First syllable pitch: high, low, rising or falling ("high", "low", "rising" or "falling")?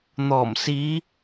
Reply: low